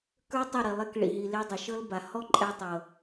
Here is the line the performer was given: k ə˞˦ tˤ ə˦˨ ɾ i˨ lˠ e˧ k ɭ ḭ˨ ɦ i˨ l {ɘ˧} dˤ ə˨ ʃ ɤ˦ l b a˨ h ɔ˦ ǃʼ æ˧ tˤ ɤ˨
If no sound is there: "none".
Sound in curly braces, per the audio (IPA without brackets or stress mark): e˧